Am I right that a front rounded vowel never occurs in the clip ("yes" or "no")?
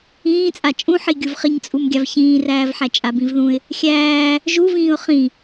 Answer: yes